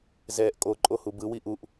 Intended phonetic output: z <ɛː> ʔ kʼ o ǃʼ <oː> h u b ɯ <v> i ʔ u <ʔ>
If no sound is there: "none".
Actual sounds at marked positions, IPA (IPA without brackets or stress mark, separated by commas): ɛː, o, w, ʔ